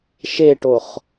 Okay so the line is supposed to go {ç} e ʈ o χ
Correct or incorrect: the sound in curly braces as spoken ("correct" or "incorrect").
incorrect